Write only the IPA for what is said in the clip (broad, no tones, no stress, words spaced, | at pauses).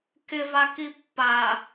kɪvaki pːa